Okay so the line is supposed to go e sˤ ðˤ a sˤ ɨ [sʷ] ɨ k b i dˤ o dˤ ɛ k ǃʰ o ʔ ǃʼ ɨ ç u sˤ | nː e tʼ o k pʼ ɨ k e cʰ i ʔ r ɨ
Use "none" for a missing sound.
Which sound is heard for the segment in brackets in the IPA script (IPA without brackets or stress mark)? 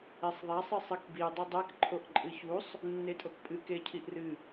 sˤ